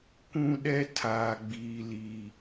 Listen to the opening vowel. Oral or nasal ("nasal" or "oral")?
nasal